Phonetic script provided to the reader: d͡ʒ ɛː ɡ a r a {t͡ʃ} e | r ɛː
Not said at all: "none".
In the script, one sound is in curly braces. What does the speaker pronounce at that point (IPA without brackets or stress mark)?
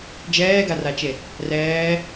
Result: t͡ʃ